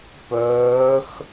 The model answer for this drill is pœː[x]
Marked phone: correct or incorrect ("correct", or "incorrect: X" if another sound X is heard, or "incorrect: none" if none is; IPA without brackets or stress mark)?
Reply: correct